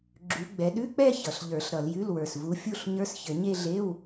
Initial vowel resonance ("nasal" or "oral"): oral